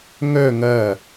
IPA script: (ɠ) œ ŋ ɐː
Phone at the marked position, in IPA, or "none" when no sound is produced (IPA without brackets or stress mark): ŋ